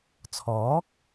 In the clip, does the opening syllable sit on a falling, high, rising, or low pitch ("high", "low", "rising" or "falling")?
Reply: rising